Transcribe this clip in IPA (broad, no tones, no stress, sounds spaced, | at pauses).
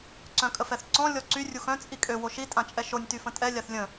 ǀ œ̃ kʼ ə f ɛ θ ǀ ɔ̃ lʲ ɔ ǀ y rʲ u x œ̃ t͡sʼ i kʼ ø w o ʃ i tʼ ã t͡ʃʼ ɛ ʃ o nʲ t y f ə̃ tʼ ɛ lʲ a θ lʲ ə̃